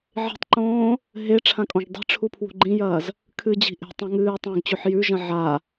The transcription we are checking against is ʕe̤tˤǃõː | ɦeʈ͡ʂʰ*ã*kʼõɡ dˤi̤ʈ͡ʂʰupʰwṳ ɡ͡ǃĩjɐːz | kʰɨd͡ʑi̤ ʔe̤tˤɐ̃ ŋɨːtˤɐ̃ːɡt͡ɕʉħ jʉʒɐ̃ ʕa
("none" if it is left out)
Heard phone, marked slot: ã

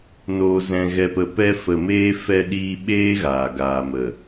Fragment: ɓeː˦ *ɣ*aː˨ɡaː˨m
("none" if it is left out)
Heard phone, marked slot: ɣ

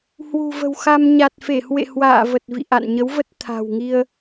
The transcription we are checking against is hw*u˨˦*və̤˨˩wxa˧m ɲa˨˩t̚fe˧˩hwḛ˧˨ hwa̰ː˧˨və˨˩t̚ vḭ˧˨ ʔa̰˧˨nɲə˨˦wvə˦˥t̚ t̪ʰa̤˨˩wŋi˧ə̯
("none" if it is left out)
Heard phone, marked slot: ṳ˨˩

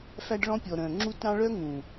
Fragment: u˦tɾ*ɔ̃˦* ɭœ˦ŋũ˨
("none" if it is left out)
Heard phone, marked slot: ɑ̃˦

